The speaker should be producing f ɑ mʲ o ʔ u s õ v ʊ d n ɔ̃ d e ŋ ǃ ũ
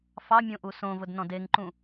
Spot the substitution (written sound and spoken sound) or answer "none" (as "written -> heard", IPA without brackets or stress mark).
o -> õ